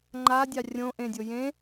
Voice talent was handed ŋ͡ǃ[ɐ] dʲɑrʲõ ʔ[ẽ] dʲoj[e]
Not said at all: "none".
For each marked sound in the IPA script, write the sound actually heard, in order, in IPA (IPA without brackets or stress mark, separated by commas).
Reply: a, ẽ, ẽ